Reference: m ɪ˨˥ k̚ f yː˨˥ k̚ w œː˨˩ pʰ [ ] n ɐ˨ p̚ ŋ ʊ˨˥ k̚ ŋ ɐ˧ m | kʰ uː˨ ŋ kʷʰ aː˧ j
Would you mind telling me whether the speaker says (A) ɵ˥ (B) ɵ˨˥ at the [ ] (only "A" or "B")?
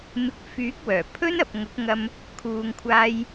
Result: A